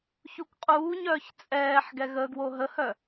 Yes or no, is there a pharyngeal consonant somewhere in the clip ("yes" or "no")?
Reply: yes